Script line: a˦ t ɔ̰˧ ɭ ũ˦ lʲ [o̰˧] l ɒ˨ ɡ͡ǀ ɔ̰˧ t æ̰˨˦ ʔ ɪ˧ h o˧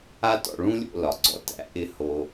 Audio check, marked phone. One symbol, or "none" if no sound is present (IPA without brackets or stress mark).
o̰˧